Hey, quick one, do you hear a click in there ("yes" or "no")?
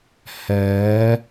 no